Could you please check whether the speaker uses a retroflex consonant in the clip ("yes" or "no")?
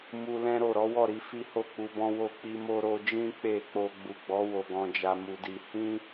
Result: no